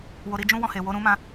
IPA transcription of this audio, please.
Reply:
w o˧ ɾ i˦ d͡ʒ ũ˦ w ɔ̃˧ h e˨ w o˧ ɾ ũ˦ m ã˦

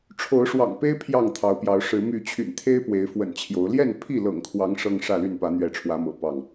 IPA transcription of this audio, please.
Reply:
ʈ͡ʂʰ o˨˦ ʊ̯ ʂ w ɑ̰˨˩ ŋ p e˦ ɪ̯ pʰ j ɑ˥˨ ŋ t̪ʰ ɑ˨˦ ʊ̯ p j ɑ˨˦ ʊ̯ ʂ ɻ̩˨˦ m y˨˦ t͡ɕʰ y̰˨˩ n t̪ʰ e˦ ɪ̯ p w e˨˦ ɪ̯ f w ə̰˨˩ n t͡ɕʰ j o˨˦ ʊ̯ l j ɛ˥˨ n pʰ i˥˨ l ɤ̰˨˩ ŋ kʰ w ɑ˨˦ ŋ ʂ ɤ˦ ŋ ʂ ä˥˨ l y˥˨ n p ä˨˦ n̪ ɥ ɛ˨˦ ʈ͡ʂʰ w ä˨˦ m ɤ̰˨˩ p ɑ˥˨ ŋ

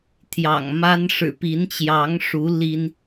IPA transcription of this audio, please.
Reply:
t̪ʰ j ɑ̰˨˩ ŋ m a˦ n ʂ ɻ̩˨˩ p i˨˦ n t͡ɕ j ɑ˨˦ ŋ ʂ u˨˦ l i˦ n

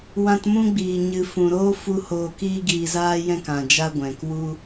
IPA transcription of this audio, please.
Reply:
w ã˧ t m ũ˦ ɡ͡b iː˨ ɲ ɨ˨ f ũ˨ ɾ oː˦ f u˦ h oː˧ k iː˦ ɡ iː˧ z aː˦ j ɛ̃˦ k ã˨ d͡ʒ a˦ ɡʷ ɛ̃˨ k w u˦

